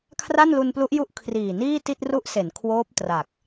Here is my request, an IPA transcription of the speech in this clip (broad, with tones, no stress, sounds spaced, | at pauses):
kʰ r a˥˩ n l u˧ n p l u˦˥ ʔ j u˥˩ ʔ kʰ r iː˨˩ n iː˥˩ t i˥˩ t̚ r u˦˥ ʔ s e˩˦ n kʰ w oː˦˥ p̚ t r a˨˩ k̚